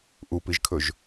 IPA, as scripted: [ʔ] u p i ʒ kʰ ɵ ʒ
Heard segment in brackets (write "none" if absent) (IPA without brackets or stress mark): ʔ